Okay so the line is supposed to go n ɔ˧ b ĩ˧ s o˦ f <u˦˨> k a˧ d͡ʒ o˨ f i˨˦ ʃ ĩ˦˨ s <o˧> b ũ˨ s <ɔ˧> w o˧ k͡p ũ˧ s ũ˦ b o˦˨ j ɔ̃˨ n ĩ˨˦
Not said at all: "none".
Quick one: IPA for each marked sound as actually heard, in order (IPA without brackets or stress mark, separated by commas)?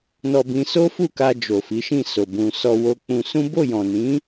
u˦˨, o˨, ɔ˧